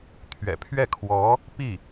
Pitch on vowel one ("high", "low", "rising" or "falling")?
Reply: low